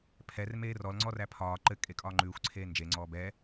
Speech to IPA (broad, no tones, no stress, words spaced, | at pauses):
pʰɛr meːrɔl ŋ͡ǀɔræpʰɒː ǃɘ kʼekʼɒːŋ͡ǃʉːxʷ ǀʰeːnd͡ʒe ŋ͡ǀɔːbɛ